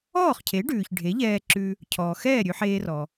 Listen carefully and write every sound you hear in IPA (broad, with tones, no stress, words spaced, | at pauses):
ɔː˥˩χcʰe˩˥ɖʉː˩ç ɖʱe˩˥ʎɛː˧ǁʉ˧ | cʰɔː˩xɛː˥˩ ɾʲʉ˧ħeː˧rɔ˩